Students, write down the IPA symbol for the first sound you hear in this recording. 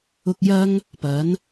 ʊ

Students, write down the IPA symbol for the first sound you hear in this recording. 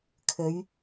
kʰ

